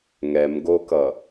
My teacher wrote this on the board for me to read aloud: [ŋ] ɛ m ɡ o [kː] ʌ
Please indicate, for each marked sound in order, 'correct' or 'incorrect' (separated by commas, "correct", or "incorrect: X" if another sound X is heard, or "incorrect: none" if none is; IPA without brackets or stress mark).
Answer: correct, incorrect: k